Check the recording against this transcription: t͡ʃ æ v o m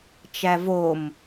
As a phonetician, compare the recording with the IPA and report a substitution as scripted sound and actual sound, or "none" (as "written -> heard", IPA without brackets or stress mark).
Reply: none